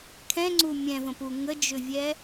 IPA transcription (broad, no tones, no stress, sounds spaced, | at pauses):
kʰ ɛ̃ ŋ͡ǀ u mʲ ɛ̃ v ə̃ p u ŋ ə d͡ʒ ʏ vʲ ɛ